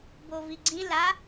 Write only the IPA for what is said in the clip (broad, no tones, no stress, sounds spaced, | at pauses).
b o v i ɡ͡ǀ ĩ l a